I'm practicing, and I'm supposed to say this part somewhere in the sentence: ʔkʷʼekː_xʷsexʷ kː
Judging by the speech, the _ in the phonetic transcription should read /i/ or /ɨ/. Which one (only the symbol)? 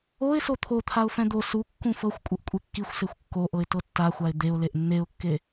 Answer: i